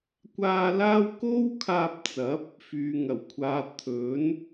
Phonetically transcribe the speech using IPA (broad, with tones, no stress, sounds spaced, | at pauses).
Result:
kʷ aː˧ l aː˥ w k o˥ w kʰ aː˧ p̚ t͡s ɐ˨˥ p̚ | f yː˨ ŋ ɐ˨˩ w kʷʰ aː˨ t̪ʰ ɵ˨˥ n